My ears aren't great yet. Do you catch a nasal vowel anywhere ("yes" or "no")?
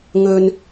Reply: no